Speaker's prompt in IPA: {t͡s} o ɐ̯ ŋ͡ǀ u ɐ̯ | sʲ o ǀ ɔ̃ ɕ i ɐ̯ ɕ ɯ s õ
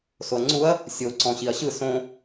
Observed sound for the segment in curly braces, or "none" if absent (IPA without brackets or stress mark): s